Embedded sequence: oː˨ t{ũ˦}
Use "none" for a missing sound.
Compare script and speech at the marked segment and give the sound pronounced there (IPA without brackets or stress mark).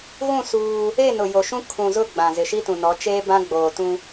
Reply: ũ˦